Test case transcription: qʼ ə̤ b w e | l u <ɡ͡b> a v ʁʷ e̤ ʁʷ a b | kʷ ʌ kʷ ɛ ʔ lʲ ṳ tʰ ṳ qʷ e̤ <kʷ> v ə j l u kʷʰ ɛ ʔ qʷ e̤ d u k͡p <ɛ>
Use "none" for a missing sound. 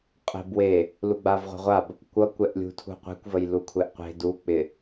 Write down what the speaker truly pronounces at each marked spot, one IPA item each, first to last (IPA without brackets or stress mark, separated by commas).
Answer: ɡ͡b, kʷ, ɪ